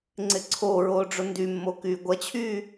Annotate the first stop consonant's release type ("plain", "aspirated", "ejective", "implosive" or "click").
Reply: click